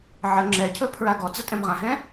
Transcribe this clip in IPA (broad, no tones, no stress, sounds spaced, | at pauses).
ʕ ə ŋ͡ǁ ɛ cʰ ɵ pʰ ɹ a ɡ ɔ d͡z ə tʼ ɛ̃ m ʁ ã ɦ ɛ̃